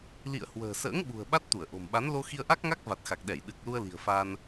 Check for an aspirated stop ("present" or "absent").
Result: absent